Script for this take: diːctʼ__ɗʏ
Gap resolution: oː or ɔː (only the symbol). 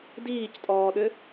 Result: ɔː